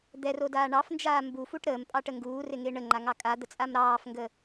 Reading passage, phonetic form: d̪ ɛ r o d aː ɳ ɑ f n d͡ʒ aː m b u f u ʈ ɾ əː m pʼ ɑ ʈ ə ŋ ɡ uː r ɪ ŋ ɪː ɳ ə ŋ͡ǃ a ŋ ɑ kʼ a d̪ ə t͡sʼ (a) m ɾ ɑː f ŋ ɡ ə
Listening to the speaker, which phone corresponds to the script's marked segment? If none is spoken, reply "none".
a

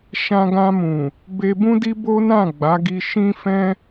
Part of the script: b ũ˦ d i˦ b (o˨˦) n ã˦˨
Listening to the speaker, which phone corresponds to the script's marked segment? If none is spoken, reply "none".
o˦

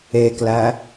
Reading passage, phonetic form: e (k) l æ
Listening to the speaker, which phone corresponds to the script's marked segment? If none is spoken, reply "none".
k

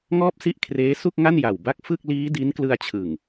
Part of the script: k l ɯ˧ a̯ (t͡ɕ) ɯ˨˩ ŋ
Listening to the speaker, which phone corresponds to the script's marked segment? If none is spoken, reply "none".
t͡ɕʰ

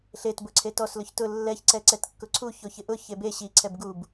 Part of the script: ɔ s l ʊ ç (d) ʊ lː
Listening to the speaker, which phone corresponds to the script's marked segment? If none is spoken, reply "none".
t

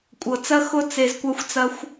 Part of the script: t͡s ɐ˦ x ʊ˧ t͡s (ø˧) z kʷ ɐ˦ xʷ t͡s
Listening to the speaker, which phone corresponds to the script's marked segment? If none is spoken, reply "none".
e˧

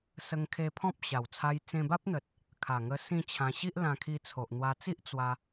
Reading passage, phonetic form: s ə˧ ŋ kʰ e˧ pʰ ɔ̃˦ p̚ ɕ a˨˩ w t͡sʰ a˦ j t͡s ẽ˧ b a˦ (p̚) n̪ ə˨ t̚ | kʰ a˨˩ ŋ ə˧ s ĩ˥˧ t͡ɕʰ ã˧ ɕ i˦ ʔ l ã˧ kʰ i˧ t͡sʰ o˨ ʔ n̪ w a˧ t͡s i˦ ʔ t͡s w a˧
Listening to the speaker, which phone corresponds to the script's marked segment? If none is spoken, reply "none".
p̚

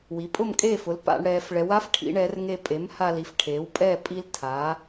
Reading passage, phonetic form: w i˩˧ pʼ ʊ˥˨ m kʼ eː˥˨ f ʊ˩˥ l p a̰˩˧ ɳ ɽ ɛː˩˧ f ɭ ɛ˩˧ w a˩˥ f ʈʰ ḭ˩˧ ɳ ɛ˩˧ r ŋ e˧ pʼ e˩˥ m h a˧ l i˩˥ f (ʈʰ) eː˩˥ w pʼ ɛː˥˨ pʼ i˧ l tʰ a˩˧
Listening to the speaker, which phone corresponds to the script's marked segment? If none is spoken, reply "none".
ʈʰ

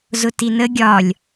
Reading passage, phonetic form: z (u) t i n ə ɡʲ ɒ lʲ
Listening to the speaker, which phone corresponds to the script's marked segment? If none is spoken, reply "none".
ʊ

